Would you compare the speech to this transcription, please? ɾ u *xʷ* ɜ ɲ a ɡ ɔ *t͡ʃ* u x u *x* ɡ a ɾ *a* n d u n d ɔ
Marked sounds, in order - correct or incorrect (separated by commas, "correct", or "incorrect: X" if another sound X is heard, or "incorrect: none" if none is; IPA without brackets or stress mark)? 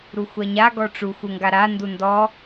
correct, incorrect: ʈ͡ʂ, incorrect: ŋ, correct